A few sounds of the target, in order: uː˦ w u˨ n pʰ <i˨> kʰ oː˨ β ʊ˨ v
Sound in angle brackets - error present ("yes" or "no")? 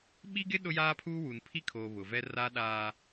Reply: yes